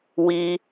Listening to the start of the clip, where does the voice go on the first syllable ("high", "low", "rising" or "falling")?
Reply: high